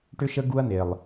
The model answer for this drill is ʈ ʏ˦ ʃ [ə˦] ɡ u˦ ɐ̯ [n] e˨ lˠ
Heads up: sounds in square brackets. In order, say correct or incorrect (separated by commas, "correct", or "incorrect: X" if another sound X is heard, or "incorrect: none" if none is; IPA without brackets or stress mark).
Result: correct, correct